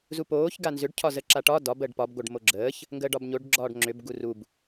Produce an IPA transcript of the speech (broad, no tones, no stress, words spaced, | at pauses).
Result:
zupoːç ɡanzʏɖ cʰɒzəǁaʈɒ dɒ bəɖpɒb ɡoɖmoɡ͡ǁəːç | ŋɡəːɖɒbɲoɖ ɡ͡ǁɒːɖŋ͡ǁʏb ɡurub